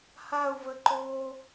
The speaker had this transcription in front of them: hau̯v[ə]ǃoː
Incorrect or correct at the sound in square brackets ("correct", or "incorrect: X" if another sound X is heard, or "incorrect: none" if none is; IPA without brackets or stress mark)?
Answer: correct